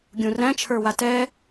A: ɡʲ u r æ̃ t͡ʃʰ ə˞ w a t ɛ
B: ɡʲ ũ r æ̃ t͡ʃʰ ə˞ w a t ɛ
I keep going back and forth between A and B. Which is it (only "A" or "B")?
B